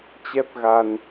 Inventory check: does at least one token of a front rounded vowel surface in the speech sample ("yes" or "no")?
no